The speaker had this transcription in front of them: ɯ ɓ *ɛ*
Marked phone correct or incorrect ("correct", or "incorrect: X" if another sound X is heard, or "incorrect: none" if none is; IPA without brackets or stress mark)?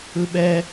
correct